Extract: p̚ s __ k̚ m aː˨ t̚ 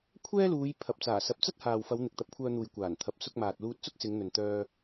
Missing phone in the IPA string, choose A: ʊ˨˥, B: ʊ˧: B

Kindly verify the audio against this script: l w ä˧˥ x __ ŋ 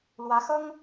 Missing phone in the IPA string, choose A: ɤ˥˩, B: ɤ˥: B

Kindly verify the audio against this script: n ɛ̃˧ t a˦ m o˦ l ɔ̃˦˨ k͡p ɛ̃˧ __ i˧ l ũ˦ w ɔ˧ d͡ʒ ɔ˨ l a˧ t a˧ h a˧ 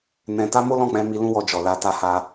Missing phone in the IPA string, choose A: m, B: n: A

